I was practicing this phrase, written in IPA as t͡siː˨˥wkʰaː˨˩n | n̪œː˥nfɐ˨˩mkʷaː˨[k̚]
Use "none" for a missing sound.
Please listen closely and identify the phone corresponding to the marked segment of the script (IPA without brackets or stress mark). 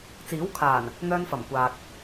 k̚